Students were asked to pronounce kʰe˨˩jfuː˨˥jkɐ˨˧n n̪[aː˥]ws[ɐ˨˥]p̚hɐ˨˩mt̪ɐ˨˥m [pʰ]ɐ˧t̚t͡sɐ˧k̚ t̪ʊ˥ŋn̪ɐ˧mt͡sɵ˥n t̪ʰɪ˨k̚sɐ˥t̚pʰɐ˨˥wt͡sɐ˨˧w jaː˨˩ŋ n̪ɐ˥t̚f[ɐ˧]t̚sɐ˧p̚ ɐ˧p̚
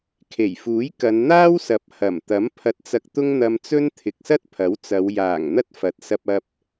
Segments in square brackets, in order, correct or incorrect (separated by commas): correct, correct, correct, incorrect